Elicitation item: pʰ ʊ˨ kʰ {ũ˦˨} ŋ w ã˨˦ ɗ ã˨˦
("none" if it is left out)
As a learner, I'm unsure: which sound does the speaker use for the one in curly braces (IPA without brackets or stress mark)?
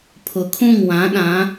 ũ˦˨